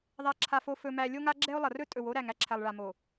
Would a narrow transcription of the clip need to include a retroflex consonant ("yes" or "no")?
yes